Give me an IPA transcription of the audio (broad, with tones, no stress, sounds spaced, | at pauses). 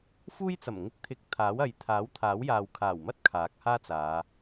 f uː˥ j t͡s ɐ˨˩ m ŋ ɪ˥ k̚ t̪ʰ ɪ˧ k̚ t̪ʰ aː˨˥ w ɐ˨˧ j t̪ʰ aː˨˥ w t̪ʰ aː˨˥ w j aː˨ w kʰ aː˨˩ w m ɐ˥ t̚ kʰ aː˨˥ k̚ h aː˥ t͡s aː˨˧